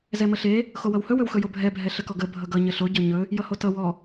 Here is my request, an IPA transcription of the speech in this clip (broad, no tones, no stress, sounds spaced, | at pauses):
z ɛ m ə ɬ e | x o w ʌ w h ɵ w ɵ w x ɵ j o bʱ ɛ bʱ ɛ ɬ ə k ɔ ɡ ə bʱ ʌ ɡ ʌ ɲ ə ɬ o ɟ ʌ ɲ ɵ | j ʌ h o t ʌ w ɔ